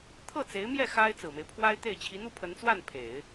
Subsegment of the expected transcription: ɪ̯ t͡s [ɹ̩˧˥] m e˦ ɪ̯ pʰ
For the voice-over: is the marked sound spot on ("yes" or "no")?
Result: no